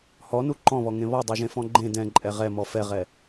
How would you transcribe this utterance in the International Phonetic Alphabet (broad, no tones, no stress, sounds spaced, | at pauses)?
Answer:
h ɔ n u ǃ ɔ̃ β ɔ ŋ ẽ β ɔ dˤ ɛ ʒ ẽ f ɔ̃ ɡ͡ǃ ẽ d ɛ̃ ǃʼ ɛ ʁ ɛ m ɔ f ɛ ʁ ɛ